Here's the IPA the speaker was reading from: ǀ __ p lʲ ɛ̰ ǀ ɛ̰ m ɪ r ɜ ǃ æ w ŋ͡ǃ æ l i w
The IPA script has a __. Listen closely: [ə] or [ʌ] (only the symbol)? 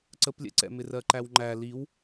ə